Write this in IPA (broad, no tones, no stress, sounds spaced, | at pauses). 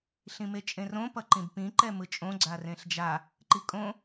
ɬ ĩ m e t͡ʃʼ ẽ r õ p ʌ ǃ ĩ b p ĩ ǃ ɛ m ɯ t͡ʃʼ õ ɡ͡ǀ a r ẽ ɬ d͡ʒ a | ǃ i kʼ õ